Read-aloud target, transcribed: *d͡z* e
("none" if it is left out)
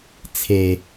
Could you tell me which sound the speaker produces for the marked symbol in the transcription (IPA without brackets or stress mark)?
t͡sʰ